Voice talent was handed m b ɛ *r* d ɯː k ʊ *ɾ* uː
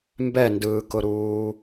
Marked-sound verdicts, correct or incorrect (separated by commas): incorrect, correct